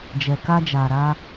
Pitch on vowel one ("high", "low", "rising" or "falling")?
low